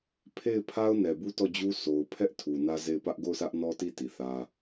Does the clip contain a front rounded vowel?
no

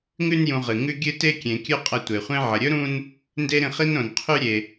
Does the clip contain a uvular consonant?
yes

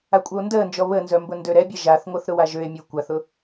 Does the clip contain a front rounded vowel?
yes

